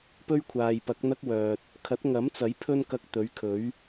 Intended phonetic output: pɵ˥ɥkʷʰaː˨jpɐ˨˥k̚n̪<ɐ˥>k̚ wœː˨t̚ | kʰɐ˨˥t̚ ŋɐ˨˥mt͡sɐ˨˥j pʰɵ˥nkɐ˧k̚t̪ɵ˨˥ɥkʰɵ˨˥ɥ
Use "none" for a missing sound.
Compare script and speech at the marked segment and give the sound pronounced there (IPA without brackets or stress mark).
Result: ɐ˥